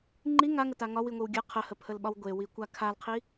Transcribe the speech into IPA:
ŋ͡ǃ i ŋ a ŋ ə t a ŋ ɒ w i ŋʷ i w ɡʲ ə qʰ ə h ə pʰ ə l ɓ ɒ w ɡʷ e w i kʷ a kʰ a l qʰ i

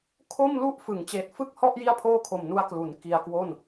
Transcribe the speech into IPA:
kʰ o˥˩ m l u˥˩ ʔ f ɯ˩˦ ŋ t͡ɕ eː˨˩ t̚ f ɯ˥˩ k̚ h ɔ˥˩ ʔ j i˥˩ a̯ pʰ oː˥˩ kʰ o˨˩ m n u˧ a̯ k l u˩˦ n k i˧ a̯ k w o˥˩ n

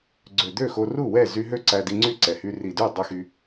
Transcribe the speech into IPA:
ɡ͡ǀ ø˨˩ d̪ ø˥˩ x o˧ r u˥˩ w ɛ˥˩ z y˧ ɦ ø˥˩ ǀ æ˧ d i˧ ŋ͡ǀ y˥˩ ǀ ɛ˨˩ h y˧ r i˨˩ d y˥˩ dˤ ʉ˧ x y˧

